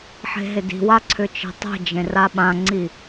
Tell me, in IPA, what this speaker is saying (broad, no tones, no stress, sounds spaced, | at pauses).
ħ e̤ ɦ ɪ d i̤ w a ǀʰ ʏ t͡ʃ i̤ tˤ e̤ d͡ʒ ẽ r a ɓ ã ŋ͡ǀ i